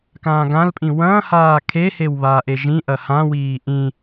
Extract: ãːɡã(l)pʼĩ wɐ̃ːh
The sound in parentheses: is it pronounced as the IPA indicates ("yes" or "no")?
yes